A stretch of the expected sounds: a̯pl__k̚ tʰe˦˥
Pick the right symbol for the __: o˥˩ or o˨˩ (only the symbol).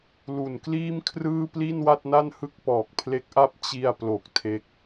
o˨˩